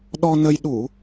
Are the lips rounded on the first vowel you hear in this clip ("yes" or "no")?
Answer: yes